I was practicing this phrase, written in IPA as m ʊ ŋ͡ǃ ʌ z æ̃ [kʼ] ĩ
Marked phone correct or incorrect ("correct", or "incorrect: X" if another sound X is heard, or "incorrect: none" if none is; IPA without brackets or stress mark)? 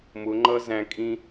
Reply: correct